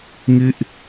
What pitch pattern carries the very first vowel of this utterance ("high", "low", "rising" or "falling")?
falling